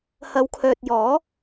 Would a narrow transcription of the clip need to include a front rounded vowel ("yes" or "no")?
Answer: yes